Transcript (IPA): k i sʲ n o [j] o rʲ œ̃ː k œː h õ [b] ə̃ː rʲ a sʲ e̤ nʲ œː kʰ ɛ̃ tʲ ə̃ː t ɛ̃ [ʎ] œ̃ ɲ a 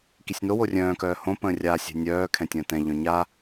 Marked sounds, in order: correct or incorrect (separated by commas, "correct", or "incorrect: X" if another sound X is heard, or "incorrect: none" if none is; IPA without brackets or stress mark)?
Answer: incorrect: w, incorrect: p, correct